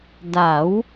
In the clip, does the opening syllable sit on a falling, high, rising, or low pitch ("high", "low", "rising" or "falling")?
rising